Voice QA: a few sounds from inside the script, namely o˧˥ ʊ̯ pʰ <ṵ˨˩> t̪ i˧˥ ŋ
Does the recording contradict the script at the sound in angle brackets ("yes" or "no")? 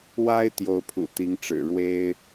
no